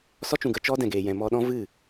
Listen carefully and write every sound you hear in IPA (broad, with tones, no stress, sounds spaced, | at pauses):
s ɔ˦ t͡ʃ ũ˨ ɡ ə˧ t͡ʃ ɔ˦ d ɛ̃˨ ɡ eː˨ j ɛ̃˨ m ɔ˧ ɗ ɔ̃˦ v ɨ˦˨